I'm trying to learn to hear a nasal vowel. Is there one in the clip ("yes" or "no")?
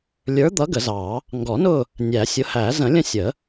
yes